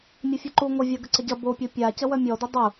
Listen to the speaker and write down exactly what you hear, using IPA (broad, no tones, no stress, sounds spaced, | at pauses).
mʲ ɐ fʲ o ǃ u ŋʷ ə vʲ a ɡ ə ǀ ə ɟ ɐ b o pʲ o pʲ a c ə w œ mʲ ɔ d ə dˤ u